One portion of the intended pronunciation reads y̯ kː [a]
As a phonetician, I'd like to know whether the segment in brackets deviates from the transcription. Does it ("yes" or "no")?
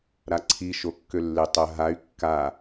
no